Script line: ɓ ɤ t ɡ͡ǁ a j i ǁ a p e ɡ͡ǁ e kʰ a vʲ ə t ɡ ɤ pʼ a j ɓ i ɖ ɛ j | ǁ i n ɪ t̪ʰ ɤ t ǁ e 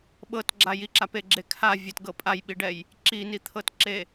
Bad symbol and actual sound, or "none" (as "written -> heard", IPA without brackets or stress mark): ɪ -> i